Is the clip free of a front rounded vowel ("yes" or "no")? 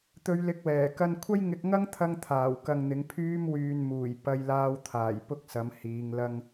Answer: no